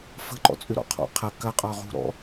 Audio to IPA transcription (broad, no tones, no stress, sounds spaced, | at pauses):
f ə̤ ǃ ɔ̰ t͡sʼ ʏ ɾ ɔ̰ qʰ ɔ̰ qʰ ɐ k ɐ qʼ ɒ ʁ ṳ ɾ ɔ̰